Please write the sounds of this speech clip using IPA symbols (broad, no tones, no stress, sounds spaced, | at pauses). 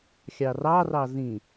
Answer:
xʲ ɑ r ɑ r ɑ z ĩ